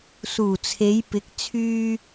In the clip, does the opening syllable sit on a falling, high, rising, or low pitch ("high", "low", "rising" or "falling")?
low